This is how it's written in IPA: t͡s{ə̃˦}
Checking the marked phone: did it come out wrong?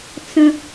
no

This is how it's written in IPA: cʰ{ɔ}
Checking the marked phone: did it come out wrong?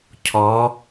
no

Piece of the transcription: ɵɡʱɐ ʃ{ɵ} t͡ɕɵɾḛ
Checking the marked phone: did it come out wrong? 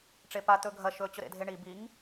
no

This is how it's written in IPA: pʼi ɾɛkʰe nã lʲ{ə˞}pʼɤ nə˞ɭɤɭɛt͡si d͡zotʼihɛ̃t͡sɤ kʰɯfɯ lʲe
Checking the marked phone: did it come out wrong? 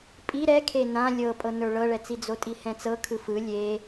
yes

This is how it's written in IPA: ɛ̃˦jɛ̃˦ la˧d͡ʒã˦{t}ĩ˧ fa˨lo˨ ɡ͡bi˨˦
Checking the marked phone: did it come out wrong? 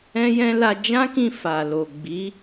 yes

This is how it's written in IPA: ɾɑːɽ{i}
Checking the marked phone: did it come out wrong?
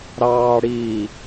yes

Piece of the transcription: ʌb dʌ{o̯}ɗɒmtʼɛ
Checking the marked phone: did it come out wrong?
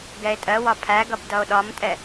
no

